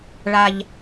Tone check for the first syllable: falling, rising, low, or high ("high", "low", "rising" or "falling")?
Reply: low